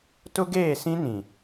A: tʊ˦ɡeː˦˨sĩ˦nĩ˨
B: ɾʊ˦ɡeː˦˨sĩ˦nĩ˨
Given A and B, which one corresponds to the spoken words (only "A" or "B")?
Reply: A